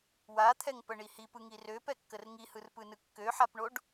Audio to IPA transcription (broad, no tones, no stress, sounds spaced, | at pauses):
w a t̪ʰ ɛ ŋ p ə ɳ i h i p ɯ ŋ i r ø p ɛ kː ə r ŋ i h ɯ r p ɯ n ɯ kː ø ħ a p ɳ o ɖ